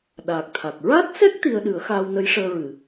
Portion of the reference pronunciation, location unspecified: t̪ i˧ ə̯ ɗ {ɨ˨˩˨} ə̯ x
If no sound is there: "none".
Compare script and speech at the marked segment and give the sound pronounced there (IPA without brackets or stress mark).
ɨ˨˩˦